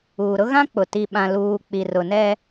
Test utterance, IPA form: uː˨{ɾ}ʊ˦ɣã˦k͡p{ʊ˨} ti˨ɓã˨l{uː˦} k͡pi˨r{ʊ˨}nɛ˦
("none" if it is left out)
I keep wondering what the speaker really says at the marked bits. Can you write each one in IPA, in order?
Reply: ɾ, ʊ˨, uː˨, ʊ˨

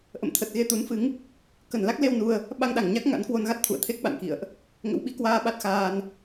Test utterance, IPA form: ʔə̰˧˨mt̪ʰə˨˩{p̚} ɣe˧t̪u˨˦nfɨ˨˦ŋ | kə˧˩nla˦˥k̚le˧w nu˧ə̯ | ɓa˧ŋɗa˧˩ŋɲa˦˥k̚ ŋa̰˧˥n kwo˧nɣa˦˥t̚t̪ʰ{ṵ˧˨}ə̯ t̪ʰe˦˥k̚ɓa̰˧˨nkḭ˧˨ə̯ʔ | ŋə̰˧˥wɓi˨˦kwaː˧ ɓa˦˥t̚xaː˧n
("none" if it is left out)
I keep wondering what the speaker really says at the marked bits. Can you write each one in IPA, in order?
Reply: t̚, ṵ˧˨

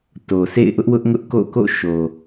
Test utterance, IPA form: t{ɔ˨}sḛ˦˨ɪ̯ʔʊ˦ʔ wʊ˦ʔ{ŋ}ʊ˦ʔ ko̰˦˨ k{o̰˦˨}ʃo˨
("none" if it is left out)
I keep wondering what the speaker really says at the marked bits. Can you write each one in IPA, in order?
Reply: o˨, ŋ, o̰˦˨

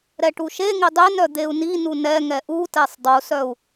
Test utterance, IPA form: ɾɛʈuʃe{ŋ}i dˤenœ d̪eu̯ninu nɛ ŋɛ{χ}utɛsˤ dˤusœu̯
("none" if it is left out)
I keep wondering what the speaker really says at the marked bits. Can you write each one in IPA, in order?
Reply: ŋ, ʔ

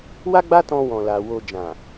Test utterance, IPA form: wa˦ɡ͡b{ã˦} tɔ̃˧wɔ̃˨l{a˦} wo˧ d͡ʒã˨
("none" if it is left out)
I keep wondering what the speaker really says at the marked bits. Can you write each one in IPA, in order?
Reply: a˦, a˨

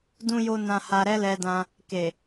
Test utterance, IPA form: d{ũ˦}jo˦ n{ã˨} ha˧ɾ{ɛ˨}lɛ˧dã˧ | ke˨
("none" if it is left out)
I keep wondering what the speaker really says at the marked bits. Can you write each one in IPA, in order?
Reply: ũ˦, ã˧, ɛ˦

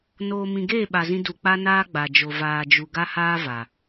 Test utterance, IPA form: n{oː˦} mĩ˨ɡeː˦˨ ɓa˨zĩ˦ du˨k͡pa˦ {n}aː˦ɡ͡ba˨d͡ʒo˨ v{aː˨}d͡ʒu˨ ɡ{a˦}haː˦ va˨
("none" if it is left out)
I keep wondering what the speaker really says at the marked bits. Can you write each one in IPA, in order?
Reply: oː˨, n, aː˨, a˦

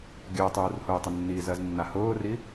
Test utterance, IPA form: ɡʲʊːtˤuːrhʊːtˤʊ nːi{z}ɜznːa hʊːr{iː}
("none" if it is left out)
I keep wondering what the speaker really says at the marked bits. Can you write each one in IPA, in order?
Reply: z, i

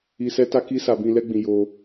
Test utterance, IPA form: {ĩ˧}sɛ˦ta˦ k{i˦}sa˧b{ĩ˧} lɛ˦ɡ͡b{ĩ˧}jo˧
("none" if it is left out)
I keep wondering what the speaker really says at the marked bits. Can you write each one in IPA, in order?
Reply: i˧, i˦, ĩ˧, ĩ˧

